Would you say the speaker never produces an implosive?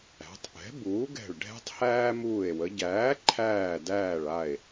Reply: yes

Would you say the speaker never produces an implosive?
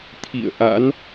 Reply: yes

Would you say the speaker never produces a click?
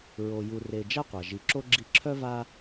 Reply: no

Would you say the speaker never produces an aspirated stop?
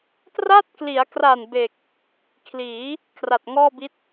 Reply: no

